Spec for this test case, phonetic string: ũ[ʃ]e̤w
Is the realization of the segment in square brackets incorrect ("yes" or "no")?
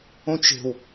yes